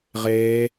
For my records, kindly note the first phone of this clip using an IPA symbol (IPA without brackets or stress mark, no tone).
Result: ʁ